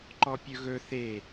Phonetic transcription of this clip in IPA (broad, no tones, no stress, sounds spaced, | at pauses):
ǃ ɔ pʲ ɵ ɣ ɵ θ e